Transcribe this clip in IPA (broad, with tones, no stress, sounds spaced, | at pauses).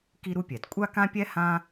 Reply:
k i˥ ɾ u˥ pʲ ɛ˩ d kʷʼ a˥ k ã˥ pʲ ɛ˥ h ã˥